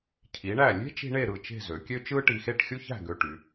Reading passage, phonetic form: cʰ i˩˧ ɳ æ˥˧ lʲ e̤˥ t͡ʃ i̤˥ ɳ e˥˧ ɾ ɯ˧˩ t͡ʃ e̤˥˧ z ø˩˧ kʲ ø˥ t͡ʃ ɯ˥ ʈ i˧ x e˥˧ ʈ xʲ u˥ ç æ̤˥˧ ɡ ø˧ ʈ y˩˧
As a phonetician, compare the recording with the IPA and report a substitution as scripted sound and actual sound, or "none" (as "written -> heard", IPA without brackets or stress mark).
æ˥˧ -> æ˧˩